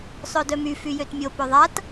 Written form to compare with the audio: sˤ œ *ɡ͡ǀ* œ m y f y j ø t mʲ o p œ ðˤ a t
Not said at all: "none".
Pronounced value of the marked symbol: d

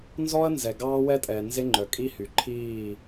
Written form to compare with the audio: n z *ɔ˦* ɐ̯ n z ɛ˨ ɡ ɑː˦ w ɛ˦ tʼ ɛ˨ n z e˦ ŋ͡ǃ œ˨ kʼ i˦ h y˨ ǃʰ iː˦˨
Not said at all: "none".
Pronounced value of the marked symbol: ɔ˦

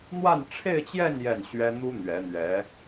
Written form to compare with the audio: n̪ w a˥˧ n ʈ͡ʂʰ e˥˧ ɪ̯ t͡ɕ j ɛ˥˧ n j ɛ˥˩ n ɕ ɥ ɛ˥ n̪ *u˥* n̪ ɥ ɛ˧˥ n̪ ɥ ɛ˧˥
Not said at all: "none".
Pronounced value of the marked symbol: u˥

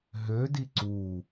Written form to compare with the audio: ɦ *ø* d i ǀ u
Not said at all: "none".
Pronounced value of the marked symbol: ø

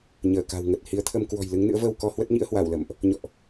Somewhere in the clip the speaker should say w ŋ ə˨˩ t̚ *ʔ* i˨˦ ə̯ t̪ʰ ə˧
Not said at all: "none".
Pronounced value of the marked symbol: h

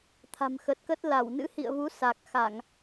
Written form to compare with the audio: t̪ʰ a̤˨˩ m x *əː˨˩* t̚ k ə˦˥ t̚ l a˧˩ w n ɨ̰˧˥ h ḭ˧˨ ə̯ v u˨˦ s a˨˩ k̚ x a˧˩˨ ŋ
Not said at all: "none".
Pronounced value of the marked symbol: ə˨˩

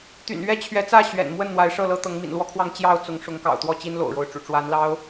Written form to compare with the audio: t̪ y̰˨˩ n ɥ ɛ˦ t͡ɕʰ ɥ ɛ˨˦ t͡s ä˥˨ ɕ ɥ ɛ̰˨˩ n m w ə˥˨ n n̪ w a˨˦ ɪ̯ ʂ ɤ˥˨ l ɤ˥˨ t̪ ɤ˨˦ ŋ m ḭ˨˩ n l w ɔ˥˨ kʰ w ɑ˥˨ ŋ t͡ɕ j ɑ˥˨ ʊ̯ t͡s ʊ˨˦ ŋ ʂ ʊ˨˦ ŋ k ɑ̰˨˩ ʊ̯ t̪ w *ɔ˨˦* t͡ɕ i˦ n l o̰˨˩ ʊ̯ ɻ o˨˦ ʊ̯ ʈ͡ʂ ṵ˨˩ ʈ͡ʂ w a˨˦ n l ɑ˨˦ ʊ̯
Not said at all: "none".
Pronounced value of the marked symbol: ɔ˥˨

